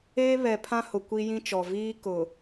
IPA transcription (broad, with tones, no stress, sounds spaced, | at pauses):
eː˦ β ɛ˨ pʰ ã˦ h ʊ˨ kʷ i˦ j ĩ˦ t͡ʃ ɔ˨ v iː˦ k ʊ˨